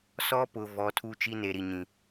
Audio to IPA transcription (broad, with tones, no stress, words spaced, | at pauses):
sɔ˦pʊ˨ vɔ˨˦tʰu˦t͡ʃi˦ ne˨ɾi˨ɲĩ˨